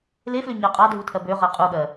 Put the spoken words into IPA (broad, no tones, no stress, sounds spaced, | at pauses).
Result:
l e f l ø ɲ ɜ qʼ ɑ dʱ u tʰ ɜ b ø ʁ ɜ qʼ u ɠ ɜ